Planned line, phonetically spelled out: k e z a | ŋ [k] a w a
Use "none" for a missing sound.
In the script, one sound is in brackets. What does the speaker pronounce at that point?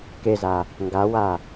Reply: ɡ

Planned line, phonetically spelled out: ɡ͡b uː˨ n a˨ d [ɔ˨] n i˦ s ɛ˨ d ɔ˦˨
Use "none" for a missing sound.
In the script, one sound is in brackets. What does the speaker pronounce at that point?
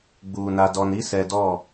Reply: ɔ˨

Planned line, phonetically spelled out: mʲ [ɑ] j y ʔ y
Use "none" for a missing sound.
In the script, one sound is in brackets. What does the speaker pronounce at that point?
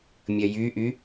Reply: ɐ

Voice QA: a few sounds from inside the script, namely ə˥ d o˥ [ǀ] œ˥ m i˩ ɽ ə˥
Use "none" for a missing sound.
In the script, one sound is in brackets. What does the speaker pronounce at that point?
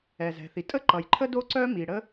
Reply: ǀ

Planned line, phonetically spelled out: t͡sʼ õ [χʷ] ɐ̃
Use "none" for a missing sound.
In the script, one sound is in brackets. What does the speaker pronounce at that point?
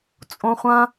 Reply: χʷ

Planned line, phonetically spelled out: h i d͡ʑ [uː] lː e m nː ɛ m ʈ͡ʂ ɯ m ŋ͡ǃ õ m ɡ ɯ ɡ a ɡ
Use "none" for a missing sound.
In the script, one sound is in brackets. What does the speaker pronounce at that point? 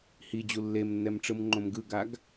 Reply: u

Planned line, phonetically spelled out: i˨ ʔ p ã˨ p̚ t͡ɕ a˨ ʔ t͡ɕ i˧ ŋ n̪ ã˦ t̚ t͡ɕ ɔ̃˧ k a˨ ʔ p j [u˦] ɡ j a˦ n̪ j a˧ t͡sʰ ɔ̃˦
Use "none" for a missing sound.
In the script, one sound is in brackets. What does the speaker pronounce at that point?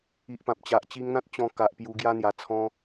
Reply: u˧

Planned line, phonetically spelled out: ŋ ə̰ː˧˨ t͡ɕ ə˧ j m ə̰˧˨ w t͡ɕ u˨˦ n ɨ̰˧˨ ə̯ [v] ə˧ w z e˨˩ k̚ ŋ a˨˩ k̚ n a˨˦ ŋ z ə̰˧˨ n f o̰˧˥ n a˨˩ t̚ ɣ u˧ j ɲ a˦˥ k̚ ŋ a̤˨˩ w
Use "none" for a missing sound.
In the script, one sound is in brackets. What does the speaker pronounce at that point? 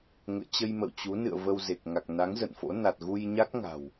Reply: v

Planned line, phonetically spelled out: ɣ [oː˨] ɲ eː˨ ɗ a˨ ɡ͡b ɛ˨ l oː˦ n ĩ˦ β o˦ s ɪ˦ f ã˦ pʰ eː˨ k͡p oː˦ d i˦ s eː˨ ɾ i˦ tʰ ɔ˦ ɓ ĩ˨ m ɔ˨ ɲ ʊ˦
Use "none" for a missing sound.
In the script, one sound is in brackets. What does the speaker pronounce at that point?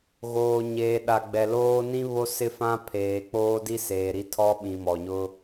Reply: oː˨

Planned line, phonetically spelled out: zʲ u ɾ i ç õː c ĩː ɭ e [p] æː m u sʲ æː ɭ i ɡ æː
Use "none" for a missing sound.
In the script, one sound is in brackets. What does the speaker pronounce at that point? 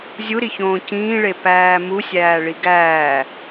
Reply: p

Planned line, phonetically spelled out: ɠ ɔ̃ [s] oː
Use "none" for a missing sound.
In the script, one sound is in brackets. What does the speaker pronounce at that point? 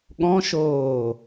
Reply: ʃ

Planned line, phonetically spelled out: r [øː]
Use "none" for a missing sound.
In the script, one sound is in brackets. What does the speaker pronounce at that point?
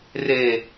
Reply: eː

